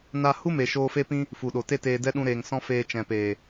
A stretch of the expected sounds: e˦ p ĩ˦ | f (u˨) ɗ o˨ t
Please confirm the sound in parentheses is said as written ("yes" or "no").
yes